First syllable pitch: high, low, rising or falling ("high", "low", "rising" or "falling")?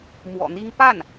low